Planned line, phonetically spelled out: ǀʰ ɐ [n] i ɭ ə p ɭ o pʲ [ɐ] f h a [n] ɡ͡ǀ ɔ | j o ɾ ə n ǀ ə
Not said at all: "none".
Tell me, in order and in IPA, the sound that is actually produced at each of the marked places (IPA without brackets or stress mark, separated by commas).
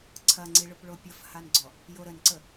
ŋ͡ǀ, ɐ, n